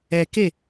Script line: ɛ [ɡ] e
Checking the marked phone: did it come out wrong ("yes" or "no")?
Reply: yes